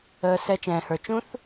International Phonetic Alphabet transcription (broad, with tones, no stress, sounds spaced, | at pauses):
əː˨ s ɛ˨ t͡ʃ ɛ̃ː˨ h ə˞˨ t͡ʃ ũ˦˥ θ